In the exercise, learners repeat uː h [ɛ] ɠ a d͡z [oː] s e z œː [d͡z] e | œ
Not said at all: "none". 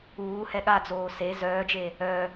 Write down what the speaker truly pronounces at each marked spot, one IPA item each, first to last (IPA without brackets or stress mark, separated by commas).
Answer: ɛ, oː, d͡ʒ